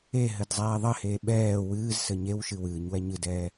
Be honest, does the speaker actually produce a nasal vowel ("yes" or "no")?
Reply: no